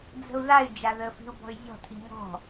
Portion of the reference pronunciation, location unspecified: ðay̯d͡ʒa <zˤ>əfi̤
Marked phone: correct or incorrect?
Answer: incorrect